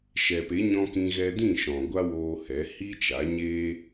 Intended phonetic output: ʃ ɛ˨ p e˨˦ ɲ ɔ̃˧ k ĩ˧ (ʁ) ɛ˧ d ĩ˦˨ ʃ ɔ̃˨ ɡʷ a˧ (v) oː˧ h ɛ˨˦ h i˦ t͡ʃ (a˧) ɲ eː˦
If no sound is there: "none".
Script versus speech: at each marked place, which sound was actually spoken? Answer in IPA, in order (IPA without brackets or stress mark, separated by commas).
ɣ, w, a˨˦